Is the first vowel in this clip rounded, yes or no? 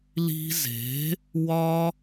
no